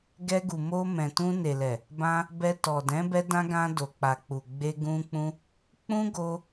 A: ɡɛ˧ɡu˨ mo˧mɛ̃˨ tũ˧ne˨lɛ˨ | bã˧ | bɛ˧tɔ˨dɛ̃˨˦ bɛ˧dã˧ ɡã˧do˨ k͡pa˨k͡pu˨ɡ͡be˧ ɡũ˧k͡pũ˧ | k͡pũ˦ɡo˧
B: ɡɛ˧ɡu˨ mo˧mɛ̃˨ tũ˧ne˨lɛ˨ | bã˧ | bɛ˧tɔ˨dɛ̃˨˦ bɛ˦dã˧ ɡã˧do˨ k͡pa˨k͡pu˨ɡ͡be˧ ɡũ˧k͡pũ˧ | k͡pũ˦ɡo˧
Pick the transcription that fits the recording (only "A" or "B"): A